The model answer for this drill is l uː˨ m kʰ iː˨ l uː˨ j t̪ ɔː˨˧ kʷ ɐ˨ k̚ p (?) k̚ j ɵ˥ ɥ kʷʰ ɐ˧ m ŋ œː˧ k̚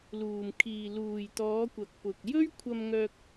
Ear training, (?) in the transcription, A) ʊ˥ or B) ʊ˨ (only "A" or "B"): B